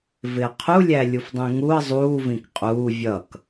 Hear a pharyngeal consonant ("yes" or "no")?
no